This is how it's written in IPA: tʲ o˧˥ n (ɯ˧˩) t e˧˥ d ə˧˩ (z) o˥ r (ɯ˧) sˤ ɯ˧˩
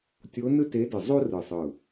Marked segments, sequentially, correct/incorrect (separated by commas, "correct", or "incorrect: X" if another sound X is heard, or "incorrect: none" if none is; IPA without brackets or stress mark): incorrect: ɯ˥, incorrect: zˤ, incorrect: ɯ˧˩